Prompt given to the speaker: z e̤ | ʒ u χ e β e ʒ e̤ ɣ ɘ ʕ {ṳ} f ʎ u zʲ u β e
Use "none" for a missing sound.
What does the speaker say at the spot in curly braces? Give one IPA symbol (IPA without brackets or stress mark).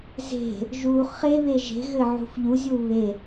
ṳ